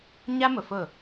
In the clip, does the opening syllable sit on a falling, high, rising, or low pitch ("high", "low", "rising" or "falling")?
high